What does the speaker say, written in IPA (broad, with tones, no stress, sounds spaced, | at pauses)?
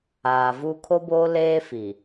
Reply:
aː˨ v u˦ kʰ o˦ b oː˦ l eː˦ f i˨